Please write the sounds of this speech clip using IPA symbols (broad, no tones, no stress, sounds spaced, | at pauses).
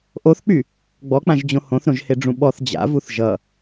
ʔ o θ k͡p y | ɡ͡b ɔ k͡p ã ʒ d͡ʑ õ h õ θ ɾ õ ʒ h e ɖ͡ʐ ũ ɓ ɔ θ d͡ʑ a̰ v u θ ʒ ʌ